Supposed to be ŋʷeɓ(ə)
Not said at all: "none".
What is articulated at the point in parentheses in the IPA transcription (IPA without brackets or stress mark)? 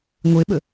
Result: ə